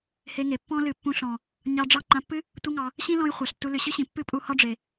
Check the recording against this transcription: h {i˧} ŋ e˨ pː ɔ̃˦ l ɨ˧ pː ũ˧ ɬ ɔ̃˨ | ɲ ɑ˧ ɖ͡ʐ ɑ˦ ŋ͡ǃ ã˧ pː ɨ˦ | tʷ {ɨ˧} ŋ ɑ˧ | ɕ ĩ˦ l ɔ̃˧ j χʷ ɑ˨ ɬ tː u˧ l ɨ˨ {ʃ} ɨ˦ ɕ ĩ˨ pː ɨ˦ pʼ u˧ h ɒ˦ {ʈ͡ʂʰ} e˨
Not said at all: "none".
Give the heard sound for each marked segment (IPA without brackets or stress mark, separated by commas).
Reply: e˧, ɨ˦, ɕ, ɖ͡ʐ